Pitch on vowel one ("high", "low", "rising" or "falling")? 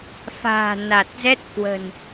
low